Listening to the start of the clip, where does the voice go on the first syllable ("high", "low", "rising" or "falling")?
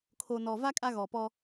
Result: low